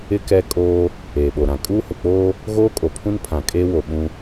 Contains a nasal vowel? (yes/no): yes